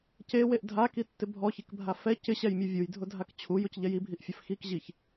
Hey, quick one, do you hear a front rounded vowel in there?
no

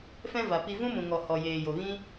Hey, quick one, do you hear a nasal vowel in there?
yes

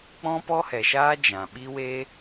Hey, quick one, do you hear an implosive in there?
yes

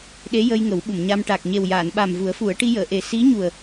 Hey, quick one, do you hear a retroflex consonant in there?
yes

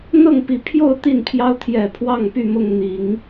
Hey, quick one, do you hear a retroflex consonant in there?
no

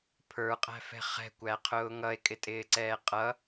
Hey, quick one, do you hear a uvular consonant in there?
yes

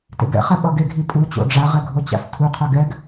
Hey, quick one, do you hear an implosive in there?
yes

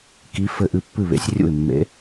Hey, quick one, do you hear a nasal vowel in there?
no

